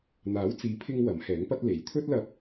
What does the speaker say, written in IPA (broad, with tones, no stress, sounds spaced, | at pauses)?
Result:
n̪ aː˨˥ w t͡s iː˨˥ pʰ ɪ˧ ŋ w ɐ˨˥ m h ɛː˨˥ ŋ p ɐ˥ t̚ l e˨˥ j t̪ʰ ɵ˥ t̚ l ɐ˧ p̚